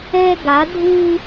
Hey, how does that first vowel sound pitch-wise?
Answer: high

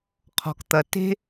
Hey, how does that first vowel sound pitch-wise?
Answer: low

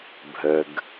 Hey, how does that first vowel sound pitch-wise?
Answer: low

